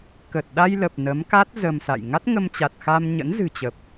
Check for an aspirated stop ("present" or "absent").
absent